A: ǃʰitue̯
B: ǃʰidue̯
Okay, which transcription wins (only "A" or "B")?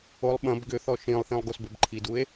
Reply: B